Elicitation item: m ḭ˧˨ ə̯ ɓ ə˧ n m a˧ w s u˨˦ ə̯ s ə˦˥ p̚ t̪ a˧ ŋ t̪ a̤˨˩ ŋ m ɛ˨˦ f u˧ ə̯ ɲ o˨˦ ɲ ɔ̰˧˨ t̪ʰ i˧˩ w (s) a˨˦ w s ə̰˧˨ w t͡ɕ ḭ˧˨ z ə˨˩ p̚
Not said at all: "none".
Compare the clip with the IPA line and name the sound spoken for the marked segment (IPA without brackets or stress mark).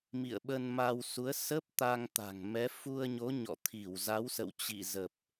z